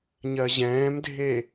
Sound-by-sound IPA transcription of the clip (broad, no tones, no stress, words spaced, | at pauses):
ɲɜʑɛ̃ːmdʱe